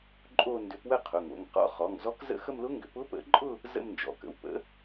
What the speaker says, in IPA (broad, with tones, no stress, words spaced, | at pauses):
ǃʼo˥˧ ndʏ˨˥pwə˥˧ qʰʊ˩˧˩ŋo̰˩˧˩ŋqɔ̰˦˥ χɔ˩˧˩ŋzɔ˦˥kzə̰˥˧ xə˥˧mlʊ˦˥ŋɡʏ˨˥p ʊ˦˥pə̰˨˥ǃʼʊ˥˧ | zə̰˥˧mnd͡ʒɔ̰˩˧˩kə̰˩˧˩w pə̰˨˥